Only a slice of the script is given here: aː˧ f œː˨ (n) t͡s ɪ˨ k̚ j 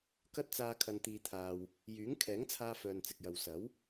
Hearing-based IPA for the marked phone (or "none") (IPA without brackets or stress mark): n